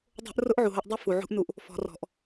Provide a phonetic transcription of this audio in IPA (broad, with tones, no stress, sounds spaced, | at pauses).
dˤ o̤˦ ʔ r ʊ˦ ʔ ʕ u˨ ɦ o˧ ʔ dˤ u˧ f u˨ ʕ ṳ˦ ʔ n u˧ ʔ | f ɔ̤˨ r ɔ̤˨ ʔ